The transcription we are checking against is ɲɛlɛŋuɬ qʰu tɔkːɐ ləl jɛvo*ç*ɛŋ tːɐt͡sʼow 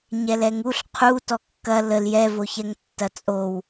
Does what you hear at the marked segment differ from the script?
no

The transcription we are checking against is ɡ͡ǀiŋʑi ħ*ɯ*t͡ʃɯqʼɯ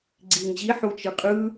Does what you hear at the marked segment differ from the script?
yes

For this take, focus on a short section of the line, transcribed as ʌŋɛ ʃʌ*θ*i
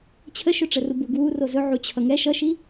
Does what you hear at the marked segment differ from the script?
yes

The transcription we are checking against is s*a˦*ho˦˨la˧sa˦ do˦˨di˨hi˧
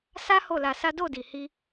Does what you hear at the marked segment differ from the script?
no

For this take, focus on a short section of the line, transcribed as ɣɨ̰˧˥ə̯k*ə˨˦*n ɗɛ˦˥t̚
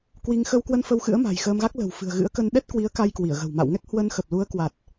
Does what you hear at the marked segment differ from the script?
yes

